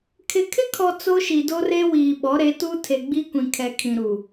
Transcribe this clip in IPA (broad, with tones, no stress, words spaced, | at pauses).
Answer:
kʰɪ˨kʰɪ˦kʰɔ˨ t͡so˦ʃi˨do˦re˦ wiː˨ɓɔ˨˦ɾe˨˦ tu˦tʰe˨ɡ͡bi˦ kʷĩ˨kʰɛ˨kʰĩ˨ ɾu˨